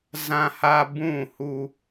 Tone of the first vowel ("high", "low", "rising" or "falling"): high